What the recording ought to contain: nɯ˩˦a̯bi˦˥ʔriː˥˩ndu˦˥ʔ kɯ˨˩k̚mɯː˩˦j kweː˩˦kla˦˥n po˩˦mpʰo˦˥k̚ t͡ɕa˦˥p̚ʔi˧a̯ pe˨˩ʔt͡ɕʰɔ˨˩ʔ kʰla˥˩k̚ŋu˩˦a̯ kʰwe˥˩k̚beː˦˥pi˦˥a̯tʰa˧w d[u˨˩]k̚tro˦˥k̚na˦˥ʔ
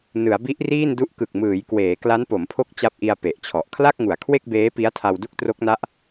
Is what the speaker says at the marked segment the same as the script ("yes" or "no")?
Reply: no